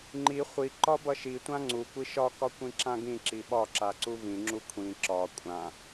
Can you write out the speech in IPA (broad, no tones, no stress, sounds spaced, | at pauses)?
ŋ͡ǃ i χʷ i ǃ ɒ b ʌ ʃ i tʷ ã ŋ͡ǀ u kʷ i ʃ ɒ k ɒ kʷ ĩ ǁ ã ɡ ĩ ǁ i ɓ ɒ ǁ a ǀ u v ĩ ŋ͡ǁ u kʷʰ ĩ ǁ ɒ kʷʼ ã